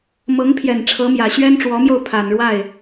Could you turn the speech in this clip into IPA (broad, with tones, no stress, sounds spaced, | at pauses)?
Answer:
m ɤ˧˥ ŋ pʰ j ɛ˨˩ n ʈ͡ʂʰ ɤ˧˥ m j ä˨˩ ɕ ɥ ɛ˥ n ʈ͡ʂ w ɔ˧˥ m j o˥˩ ʊ̯ pʰ a˨˩ n ɻ w a˥˩ ɪ̯